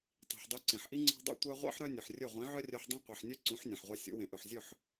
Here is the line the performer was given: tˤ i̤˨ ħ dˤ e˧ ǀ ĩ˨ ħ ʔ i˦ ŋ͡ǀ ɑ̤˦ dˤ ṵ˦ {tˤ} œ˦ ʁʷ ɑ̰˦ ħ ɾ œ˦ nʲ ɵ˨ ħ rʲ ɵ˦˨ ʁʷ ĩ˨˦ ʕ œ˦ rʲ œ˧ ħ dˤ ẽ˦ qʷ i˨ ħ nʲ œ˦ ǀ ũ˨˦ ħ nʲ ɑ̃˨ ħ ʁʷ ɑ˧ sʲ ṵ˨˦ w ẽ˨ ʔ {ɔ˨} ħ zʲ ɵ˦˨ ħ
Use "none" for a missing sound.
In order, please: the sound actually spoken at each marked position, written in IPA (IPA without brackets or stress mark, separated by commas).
tʷ, ɵ˨